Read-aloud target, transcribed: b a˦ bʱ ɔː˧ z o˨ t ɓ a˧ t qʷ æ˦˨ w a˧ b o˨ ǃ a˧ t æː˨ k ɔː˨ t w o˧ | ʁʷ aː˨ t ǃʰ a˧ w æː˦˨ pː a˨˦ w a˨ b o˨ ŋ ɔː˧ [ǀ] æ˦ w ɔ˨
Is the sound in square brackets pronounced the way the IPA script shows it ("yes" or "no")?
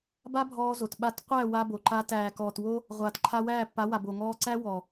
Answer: yes